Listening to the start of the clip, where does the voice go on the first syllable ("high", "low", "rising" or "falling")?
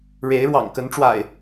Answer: rising